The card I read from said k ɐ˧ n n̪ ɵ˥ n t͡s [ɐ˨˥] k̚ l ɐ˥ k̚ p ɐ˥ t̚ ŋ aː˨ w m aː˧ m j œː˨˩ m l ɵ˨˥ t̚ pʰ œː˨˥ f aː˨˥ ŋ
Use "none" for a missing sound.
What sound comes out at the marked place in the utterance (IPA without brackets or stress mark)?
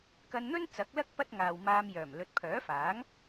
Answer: ɐ˨˥